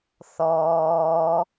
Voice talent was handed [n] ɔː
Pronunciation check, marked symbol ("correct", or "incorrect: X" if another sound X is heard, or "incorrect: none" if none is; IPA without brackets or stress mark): incorrect: θ